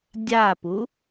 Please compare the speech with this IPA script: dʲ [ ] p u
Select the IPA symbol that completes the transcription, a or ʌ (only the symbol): a